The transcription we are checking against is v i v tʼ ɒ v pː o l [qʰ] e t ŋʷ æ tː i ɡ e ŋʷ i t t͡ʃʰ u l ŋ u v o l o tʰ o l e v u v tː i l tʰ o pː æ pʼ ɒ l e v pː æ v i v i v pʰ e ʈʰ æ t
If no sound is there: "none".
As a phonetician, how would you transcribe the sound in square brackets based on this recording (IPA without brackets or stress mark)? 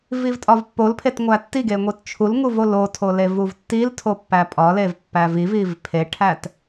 pʰ